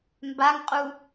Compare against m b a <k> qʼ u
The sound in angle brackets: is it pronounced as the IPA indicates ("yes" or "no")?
no